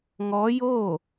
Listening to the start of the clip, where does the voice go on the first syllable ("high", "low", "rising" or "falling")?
rising